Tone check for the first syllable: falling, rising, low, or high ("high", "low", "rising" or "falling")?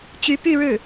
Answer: rising